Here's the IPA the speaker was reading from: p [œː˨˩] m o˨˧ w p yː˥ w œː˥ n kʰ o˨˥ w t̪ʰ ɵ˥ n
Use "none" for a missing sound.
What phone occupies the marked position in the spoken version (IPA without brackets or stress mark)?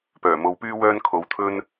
œː˨˩